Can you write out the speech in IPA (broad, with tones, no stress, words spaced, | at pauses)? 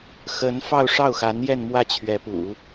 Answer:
xə˧˥n fɑ˥˧ʊ̯ʂɑ˥˩ʊ̯xa˧˥njɛ˥˧n mwä˥˩t͡ɕʰɥɛ˧˥pṵ˨˩˦